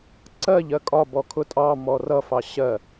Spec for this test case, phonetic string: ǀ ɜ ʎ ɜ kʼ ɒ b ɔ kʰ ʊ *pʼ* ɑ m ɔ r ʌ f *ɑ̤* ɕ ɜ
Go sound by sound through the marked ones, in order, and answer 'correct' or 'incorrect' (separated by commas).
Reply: incorrect, incorrect